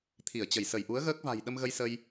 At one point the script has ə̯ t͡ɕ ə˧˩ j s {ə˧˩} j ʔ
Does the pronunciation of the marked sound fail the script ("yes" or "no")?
no